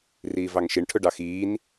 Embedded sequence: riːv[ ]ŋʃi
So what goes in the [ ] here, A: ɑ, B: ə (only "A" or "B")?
A